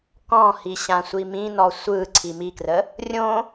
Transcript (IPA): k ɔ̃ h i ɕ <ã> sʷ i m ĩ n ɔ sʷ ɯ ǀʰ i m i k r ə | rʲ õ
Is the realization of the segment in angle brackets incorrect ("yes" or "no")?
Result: no